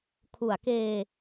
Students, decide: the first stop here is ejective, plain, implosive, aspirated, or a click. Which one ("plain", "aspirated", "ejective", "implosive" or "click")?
aspirated